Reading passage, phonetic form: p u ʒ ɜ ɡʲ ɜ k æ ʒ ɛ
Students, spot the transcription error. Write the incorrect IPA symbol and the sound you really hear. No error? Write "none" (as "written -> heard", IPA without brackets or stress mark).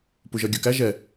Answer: none